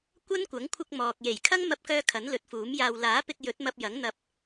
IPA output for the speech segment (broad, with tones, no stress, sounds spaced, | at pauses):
kʷ ɐ˥ n kʷ ɐ˨˥ ŋ kʷʰ ɪ˧ k̚ m ɔː˨ k̚ j e˨˩ j kʰ ɐ˥ ŋ m ɐ˧ p̚ k œː˧ kʰ ɐ˨˥ n l ɵ˨˥ t̚ f uː˨˥ m j aː˧ w l aː˨˥ p ɪ˧ k̚ j ɵ˨˥ t̚ m ɐ˧ p̚ j ɐ˨˥ ŋ n̪ ɐ˧ p̚